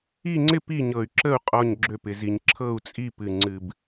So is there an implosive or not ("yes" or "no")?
no